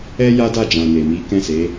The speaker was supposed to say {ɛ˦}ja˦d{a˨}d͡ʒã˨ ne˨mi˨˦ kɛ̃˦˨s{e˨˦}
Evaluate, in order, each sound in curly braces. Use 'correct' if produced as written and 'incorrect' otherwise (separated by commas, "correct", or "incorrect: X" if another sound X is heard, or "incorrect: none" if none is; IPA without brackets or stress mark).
correct, incorrect: a˦˨, correct